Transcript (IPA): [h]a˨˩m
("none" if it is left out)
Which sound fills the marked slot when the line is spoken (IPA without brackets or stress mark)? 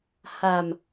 h